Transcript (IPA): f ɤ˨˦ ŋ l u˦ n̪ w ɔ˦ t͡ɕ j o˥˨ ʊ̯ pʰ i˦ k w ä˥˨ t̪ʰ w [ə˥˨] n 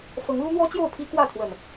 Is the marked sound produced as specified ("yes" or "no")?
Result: no